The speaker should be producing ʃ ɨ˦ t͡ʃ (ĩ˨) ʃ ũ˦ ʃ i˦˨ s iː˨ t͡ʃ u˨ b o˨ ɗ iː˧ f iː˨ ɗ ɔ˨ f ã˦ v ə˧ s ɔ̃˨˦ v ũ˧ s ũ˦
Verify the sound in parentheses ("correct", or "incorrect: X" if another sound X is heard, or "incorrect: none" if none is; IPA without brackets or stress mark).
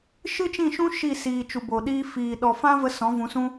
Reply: incorrect: ĩ˦˨